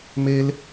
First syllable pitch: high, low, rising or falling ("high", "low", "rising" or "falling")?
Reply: high